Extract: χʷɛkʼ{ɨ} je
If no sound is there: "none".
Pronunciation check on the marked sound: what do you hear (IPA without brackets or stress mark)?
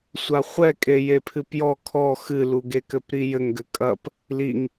e